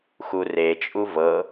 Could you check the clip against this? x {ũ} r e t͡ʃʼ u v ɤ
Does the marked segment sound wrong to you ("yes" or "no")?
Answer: yes